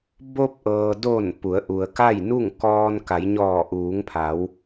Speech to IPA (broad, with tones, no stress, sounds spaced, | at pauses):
b o˧ p̚ ʔ ɤː˩ d o˧˩ n p u˩˧ ə̯ ʔ u˩ ə̯ k a˥˨ j n u˥˨ ŋ k ɔː˧ n k a˩˧ j ɲ ɔː˧˩ ʔ uː˩˧ ŋ pʰ a˩˧ w